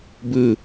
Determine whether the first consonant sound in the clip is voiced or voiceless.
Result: voiced